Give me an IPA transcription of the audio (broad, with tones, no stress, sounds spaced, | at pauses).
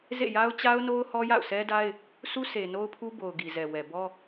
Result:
z ḛ˦˨ j a˦ ʊ̯ t͡ɕ a˦ ʊ̯ n o˦ ʊ̯ h ɔ˦ j a̰˦˨ ʊ̯ sʰ ɛ˦ d a˦ ɪ̯ | sʰ u˦ sʰ e˨ n o˦ ʊ̯ pʰ u˦ b o˨ ʊ̯ ɡ i˨ z ɛ˨ w ɛ˨ b ɔ˦